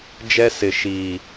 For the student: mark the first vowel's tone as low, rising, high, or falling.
high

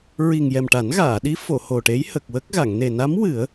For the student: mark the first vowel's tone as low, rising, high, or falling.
low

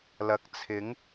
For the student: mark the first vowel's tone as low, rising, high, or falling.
rising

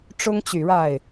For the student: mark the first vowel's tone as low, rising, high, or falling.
high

